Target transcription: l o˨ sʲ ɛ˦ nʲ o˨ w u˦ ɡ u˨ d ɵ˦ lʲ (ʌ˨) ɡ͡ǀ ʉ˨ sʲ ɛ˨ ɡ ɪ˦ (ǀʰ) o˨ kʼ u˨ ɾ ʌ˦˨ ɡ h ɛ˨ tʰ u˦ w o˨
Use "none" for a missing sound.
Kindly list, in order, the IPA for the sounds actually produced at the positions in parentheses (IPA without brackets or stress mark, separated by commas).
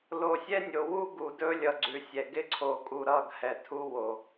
ʌ˨, ǀʰ